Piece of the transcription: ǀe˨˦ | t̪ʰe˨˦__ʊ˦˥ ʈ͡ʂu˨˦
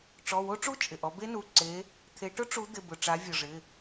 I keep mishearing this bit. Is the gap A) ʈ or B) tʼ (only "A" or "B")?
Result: A